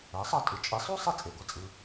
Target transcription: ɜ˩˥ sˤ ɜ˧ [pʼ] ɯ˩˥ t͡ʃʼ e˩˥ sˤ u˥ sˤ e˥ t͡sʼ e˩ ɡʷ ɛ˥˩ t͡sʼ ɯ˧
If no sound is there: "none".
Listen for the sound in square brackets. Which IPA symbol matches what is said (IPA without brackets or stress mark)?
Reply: tʼ